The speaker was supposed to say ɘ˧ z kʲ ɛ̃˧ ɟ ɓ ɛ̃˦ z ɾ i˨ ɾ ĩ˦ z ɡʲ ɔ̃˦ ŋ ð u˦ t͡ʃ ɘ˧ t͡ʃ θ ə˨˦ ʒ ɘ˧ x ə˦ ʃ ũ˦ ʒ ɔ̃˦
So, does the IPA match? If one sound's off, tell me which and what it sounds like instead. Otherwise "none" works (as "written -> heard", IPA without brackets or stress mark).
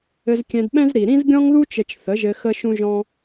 ɟ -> d